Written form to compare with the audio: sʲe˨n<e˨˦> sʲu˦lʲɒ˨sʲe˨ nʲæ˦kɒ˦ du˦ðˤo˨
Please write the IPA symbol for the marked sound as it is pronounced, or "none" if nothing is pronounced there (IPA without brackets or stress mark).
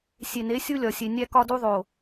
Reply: e˨˦